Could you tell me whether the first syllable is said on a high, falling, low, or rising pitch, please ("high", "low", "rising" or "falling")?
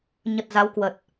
low